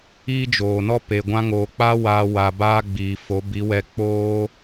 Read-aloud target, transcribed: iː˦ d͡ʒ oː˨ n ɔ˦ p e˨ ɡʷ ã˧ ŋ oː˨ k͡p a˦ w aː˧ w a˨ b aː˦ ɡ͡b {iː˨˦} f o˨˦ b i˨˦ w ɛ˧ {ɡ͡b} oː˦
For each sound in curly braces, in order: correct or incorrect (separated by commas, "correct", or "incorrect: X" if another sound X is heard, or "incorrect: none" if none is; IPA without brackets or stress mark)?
incorrect: iː˨, incorrect: k͡p